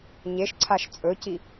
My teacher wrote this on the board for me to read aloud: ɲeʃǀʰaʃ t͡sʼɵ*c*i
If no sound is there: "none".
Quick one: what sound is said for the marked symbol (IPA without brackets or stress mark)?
c